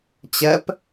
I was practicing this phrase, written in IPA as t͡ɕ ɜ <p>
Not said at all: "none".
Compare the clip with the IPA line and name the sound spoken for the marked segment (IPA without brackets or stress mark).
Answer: p